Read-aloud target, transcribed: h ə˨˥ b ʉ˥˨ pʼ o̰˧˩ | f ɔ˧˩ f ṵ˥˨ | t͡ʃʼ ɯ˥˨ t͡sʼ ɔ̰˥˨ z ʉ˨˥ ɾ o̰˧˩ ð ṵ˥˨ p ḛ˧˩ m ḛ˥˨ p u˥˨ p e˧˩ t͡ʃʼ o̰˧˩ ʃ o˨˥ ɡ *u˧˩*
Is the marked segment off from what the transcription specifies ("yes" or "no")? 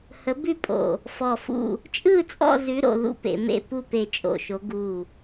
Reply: no